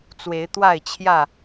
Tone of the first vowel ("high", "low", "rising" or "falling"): rising